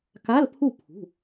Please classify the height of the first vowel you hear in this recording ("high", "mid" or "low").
low